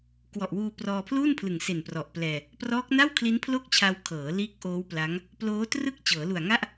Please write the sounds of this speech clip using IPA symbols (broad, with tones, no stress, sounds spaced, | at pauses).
k w ɔ˨˩ ʔ w uː˧ p r ɔː˧ pʰ l uː˥˩ n pʰ l ɯ˨˩ ŋ s e˨˩ n p r ɔ˨˩ ʔ p l ɛː˧ | p r ɔː˦˥ k̚ n a˥˩ w kʰ l i˦˥ n pʰ l o˥˩ k̚ t͡ɕʰ a˧ w kʰ ɤː˩˦ l iː˦˥ k̚ ʔ oː˦˥ w p l a˦˥ ŋ | p l oː˦˥ t r ɯ˥˩ k̚ t͡ɕ ɤː˩˦ l u˨˩ a̯ ŋ a˥˩ ʔ